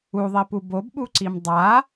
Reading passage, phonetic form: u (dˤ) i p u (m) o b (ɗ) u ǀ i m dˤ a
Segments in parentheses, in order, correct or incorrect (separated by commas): incorrect, incorrect, incorrect